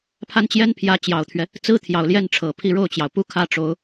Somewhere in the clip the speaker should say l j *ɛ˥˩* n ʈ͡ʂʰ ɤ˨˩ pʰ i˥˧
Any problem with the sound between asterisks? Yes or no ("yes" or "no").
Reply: no